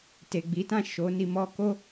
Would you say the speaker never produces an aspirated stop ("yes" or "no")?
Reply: yes